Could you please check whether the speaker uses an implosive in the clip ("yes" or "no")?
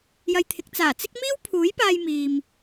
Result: no